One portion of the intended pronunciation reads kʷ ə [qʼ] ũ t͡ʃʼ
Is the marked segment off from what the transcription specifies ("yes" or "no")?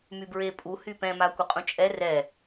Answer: no